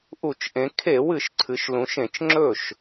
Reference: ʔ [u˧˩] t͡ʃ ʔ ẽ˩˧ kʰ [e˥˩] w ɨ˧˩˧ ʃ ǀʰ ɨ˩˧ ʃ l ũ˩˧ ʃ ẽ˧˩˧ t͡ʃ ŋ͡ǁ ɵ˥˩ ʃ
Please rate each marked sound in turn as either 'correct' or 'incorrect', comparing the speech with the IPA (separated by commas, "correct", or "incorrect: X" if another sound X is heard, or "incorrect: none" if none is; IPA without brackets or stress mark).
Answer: incorrect: u˧˩˧, incorrect: e˧˩˧